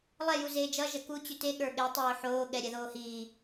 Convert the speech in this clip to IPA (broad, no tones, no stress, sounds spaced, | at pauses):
lˠ ɛ j u z eː d͡ʒ ʌ ʒ ʌ k u t͡ɕ ʉ t e ɠ ə˞ ɠ e tˤ oː ħ oː ɠ ɛ ɾʲ ɛ ð oː h i